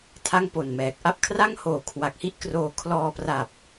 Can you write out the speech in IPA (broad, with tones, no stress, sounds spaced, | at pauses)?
tʰ a˥˩ ŋ p o˨˩ n m ɛː˨˩ k̚ ʔ a˥˩ p̚ kʰ r a˥˩ ŋ h oː˨˩ kʰ w a˨˩ k̚ h i˥˩ ʔ k r oː˧ kʰ l ɔː˧ p r a˨˩ p̚